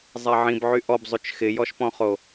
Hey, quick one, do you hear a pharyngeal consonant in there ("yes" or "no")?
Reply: yes